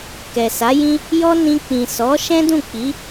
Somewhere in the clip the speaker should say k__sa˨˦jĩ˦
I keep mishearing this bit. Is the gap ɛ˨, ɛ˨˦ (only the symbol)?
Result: ɛ˨